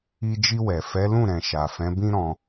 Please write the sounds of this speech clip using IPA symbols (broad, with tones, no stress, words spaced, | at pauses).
i˧d͡ʒi˧wɛ˨ fɛ˨˦lũ˦˨ɾɛ̃˨ ʃa˨fɛ̃˨˦bĩ˦ ɾɔ̃˧